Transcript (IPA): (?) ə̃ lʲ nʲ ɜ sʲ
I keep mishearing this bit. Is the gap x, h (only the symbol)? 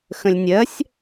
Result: x